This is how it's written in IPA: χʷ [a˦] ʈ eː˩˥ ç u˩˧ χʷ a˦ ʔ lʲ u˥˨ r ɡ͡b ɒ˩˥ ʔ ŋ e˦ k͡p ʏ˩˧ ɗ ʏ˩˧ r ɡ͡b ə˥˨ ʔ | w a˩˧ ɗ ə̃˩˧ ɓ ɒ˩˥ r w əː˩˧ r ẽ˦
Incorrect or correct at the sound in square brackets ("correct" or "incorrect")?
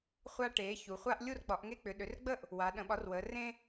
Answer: correct